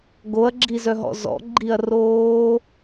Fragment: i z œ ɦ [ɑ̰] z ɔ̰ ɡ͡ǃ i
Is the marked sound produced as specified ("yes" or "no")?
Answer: no